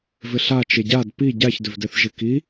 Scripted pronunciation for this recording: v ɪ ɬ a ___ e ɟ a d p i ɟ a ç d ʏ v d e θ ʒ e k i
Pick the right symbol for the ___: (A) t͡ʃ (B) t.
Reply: A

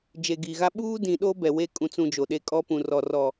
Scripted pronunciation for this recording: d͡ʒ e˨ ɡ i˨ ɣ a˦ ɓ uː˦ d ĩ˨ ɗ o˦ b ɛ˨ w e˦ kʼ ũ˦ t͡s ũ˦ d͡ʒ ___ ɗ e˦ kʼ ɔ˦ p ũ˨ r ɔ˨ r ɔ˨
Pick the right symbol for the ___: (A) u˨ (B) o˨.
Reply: B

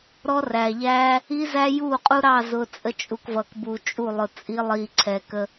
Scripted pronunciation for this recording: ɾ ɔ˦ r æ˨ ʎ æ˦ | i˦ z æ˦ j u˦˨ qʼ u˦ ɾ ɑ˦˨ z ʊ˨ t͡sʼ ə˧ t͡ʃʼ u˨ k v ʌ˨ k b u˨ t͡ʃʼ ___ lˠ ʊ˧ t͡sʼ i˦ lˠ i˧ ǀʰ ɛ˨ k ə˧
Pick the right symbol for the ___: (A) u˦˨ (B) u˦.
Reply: A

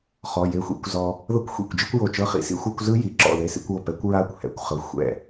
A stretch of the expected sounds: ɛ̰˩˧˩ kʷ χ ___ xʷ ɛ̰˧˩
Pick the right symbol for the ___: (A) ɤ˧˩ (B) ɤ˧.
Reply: B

